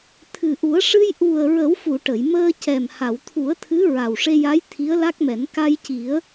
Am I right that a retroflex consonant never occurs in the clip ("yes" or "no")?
no